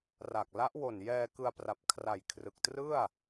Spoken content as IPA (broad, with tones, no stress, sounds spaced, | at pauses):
r a˨˩ k̚ l a˦˥ ʔ w o˨˩ n j ɛː˧ k ɯ˧ a̯ p r a˨˩ p̚ kʰ r a˨˩ j kʰ r ɯ˨˩ k̚ t r ɯ˥˩ a̯